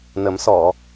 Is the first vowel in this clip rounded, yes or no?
no